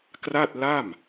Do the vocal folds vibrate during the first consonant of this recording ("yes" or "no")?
no